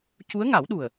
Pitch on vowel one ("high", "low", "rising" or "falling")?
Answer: rising